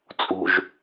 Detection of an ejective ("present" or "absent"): present